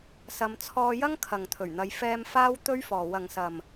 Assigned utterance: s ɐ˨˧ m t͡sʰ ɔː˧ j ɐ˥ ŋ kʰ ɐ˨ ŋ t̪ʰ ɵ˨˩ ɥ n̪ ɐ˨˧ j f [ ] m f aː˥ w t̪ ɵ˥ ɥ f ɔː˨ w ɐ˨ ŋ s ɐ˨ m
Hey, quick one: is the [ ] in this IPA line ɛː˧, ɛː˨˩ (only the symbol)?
ɛː˧